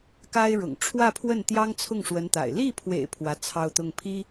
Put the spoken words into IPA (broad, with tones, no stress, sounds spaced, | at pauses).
k a˥ ɪ̯ ɻ ʊ̰˨˩ ŋ ʈ͡ʂʰ w ä˥˧ pʰ w ə˥˩ n t̪ j ɑ˥ ŋ t͡sʰ ʊ˥˩ ŋ ʂ w ə˧˥ n t̪ a̰˨˩ ɪ̯ l i˥˩ pʰ w ḛ˨˩ ɪ̯ pʰ w ä˧˥ t͡sʰ ɑ˥˧ ʊ̯ t̪ ʊ˥˩ ŋ pʰ i˥